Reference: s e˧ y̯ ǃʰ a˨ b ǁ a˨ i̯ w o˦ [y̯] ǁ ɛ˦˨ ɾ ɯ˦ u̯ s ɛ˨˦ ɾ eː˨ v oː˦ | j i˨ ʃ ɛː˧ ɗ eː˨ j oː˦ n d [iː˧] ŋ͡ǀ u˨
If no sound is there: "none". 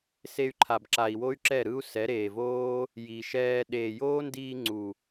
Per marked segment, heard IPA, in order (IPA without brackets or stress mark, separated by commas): y̯, iː˧